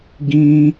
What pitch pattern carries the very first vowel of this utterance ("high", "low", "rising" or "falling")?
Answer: high